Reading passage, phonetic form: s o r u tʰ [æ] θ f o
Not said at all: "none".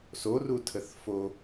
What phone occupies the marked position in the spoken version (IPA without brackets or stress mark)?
ə